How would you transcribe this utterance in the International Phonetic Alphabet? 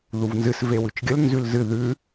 ð u v n z ɨ s v e w ʉ t͡ʃ ɡʲ ə l n z ʉ l z ɨ ð ʉ

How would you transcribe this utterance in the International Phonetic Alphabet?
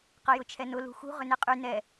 q ɐ j ʊ t͡ʃʰ ɛ n ʊ l ṳ x ṳ ʁ ʏ n e qʼ y n ɛ

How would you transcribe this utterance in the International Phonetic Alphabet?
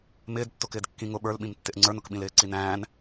m ɪː d tː ʊ k ɪː d kː ĩ ŋ ʊ ɓ ə˞ l ɓ ĩ m tː ɪ ʔ ŋ͡ǀ ə˞ n ʊ k ɓ ĩ l ɪː ǀ i n æ̃ː n

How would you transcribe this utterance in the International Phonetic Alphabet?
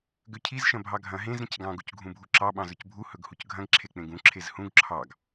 ɡ ø cʰ i z ʃ ɐ̃ bʱ ɑ ɡʱ ɐ̃ ɦ ẽ z ɾ ĩ c ɡ ɑ̃ ɡ u c ɡʱ ũ bʱ u ǁ ɑ ɓ ɑ̃ z ɵ c bʱ u h ɵ ɡ h u c ɡʱ ɐ̃ ɡ ǁʰ e k͡p ẽ ɡ ũ ǁʰ e z h ũ ɡ ǁʰ ɑ ɡ

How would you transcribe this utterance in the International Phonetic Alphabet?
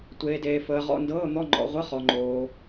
tʷ eː˩ d eː˩ f əː˩ ʁ ɔ̰˩˧˩ n d ɤː˩˧˩ n̪ ɔ˩˧˩ ŋ͡ǃ ɔ̰˩ ʁʷ ə˩˧˩ χ ɔ˩ ŋ͡ǃ oː˩

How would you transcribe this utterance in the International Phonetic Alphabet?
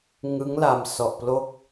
ŋ ɯ˦˥ ŋ l a˧ m s ɔ˨˩ ʔ p l o˦˥ k̚

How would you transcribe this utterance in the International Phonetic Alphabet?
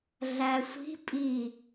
ɮ æ sʷ i̤ pʼ i

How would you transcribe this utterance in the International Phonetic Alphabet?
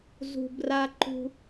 z ṳ˨ b r a˧ ǃ ṳ˧

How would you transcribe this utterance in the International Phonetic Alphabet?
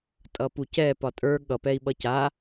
tʼ ʌ p u c ɛ p ɒ tʼ ə˞ ɠ ʌ p ɛ i̯ ɓ ʌ c a

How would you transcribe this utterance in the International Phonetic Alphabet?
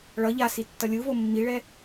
ɭ ʌ ʎ a s i tː ʌ lʲ ɯ v o mː i ɭ ɛ

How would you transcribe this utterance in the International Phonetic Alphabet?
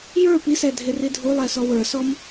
j ə˞ p i s ɛ dʱ ɪ r i dʱ u lˠ ɛ s ɔ w ə˞ s ɔ m

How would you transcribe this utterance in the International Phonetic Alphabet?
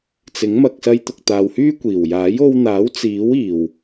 t͡s ɪ˨˥ ŋ m ɐ˨ k̚ s ɐ˧ j t̪ ʊ˨ k̚ t̪ aː˨ w h yː˥ kʷ iː˨˩ w j aː˨˥ j o˧ w n̪ aː˨˥ w t͡s iː˨˥ w iː˨˩ w

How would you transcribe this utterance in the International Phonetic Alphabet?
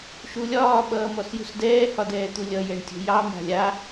ʃ u lʲ ɒː ɓ ʌː m ɔ s j ṳ s d ɛː h ɒ d ɛː t̪ u lʲ ʌ j ɛ ɳ tʲ ṳ j ɑ m a̤ lʲ a

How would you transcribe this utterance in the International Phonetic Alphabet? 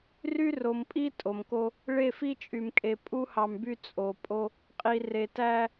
r y˦ r o˨ m pʼ i˦ tʼ o˨ m k o˦ | ɭ e˦˨ f i˦ t͡ʃʼ y˨ m kʼ e˨ pʼ u˦ h ɑ˨ m b y˦ t͡sʼ o˨ pʼ o˦ | qʼ i˨ r e˨ t æ˦

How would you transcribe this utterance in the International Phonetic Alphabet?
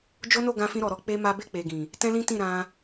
d͡ʒ o˦ n o˦˨ ɡ ã˧ f ĩ˧ ɾ ɔ˨ ɾ ɔ˨˦ k͡p e˦ m a˦ b e˦˨ k͡p e˨ ɡ ĩ˨ | t ɛ̃˦ l ĩ˦ t ĩ˦˨ ɾ ã˧

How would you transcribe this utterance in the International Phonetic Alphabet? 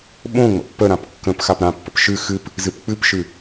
ɓ õ ŋ͡m ə̰ pː ə ɾ ã p kː ə̃ p x a p ɾ ã pː ə̰ p ʃ ɨ x ɨ p | z ɨ p k͡p ɨ p ʃ ɨ

